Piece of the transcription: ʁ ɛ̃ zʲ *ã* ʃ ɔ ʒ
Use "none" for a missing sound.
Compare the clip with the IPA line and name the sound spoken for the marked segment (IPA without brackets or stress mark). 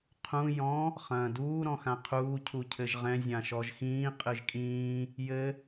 ã